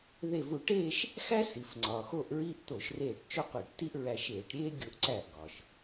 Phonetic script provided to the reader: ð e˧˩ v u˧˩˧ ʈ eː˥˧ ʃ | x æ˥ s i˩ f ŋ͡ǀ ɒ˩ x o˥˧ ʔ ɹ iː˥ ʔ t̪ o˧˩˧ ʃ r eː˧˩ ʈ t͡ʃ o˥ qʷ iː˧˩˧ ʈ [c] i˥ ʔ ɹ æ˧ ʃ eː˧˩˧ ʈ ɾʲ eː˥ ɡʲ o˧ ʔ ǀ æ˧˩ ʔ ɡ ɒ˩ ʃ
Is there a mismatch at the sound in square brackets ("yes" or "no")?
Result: yes